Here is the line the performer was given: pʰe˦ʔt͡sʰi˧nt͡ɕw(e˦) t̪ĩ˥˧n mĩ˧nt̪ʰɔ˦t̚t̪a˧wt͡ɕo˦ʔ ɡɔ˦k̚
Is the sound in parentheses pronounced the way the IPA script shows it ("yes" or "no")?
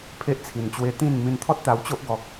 yes